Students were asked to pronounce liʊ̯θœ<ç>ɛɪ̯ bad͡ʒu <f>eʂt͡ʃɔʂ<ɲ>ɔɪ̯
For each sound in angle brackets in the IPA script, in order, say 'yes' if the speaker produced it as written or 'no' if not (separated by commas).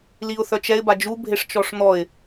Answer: no, no, no